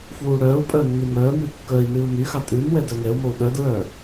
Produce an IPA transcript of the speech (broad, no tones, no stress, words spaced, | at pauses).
fwuːɽœːu̯pʼœ nːʉmœːmʉ kːœi̯ nʉːu̯myxɑ tʼʉn wɛdœŋɛu̯mou̯ ɗœdɹœ